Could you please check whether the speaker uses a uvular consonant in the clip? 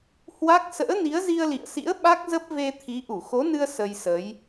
no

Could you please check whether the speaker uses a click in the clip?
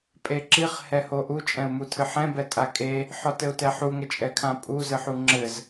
yes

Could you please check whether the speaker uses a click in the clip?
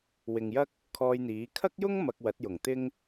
no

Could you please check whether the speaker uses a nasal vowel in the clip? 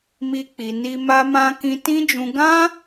yes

